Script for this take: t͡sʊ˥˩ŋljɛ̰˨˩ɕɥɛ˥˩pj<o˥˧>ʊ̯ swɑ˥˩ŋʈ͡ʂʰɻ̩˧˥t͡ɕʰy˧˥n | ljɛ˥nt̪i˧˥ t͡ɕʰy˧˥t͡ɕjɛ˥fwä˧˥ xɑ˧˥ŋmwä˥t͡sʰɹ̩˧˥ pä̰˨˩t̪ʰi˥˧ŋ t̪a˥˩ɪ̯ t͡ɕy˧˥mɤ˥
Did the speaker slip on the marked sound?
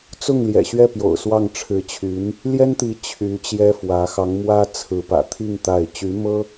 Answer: yes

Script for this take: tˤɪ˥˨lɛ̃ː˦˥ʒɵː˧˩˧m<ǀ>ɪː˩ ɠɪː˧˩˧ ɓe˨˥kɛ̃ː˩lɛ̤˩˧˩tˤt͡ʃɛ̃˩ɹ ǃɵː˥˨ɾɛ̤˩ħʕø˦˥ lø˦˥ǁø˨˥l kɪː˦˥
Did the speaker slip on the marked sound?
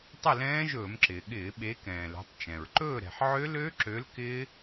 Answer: yes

